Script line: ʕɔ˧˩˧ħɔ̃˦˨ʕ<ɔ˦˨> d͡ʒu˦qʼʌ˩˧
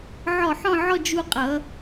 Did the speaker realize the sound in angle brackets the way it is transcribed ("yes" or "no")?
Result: yes